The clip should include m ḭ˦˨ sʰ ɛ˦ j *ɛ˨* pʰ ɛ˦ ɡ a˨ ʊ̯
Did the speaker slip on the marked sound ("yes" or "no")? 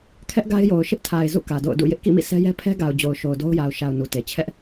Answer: yes